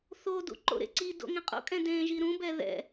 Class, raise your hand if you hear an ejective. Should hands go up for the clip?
yes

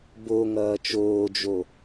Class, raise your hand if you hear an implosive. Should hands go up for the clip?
no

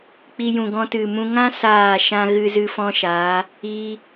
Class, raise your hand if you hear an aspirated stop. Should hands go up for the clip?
no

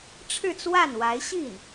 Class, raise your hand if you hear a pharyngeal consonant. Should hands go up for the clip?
no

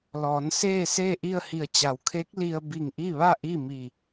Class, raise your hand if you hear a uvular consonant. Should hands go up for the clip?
no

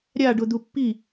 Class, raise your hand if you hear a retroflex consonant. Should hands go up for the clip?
yes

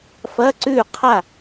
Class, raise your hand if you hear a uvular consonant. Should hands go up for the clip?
yes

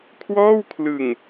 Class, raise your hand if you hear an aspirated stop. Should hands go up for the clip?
yes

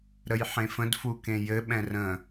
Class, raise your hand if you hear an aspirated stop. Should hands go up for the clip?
no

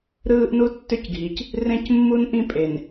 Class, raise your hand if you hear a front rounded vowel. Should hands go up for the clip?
yes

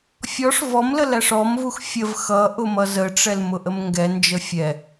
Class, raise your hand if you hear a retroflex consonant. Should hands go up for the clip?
yes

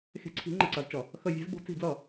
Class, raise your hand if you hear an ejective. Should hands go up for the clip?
no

